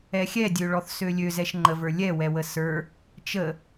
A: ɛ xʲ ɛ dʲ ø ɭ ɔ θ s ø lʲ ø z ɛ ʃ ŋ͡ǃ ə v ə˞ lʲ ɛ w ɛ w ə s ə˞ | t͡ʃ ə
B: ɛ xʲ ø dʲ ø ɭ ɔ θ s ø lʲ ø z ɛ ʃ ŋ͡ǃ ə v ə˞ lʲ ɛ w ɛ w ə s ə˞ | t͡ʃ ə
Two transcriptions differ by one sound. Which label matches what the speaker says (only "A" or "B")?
A